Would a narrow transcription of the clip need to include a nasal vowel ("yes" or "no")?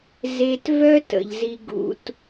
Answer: no